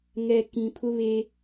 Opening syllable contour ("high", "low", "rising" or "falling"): low